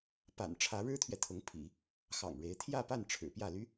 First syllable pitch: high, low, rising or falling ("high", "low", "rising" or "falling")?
low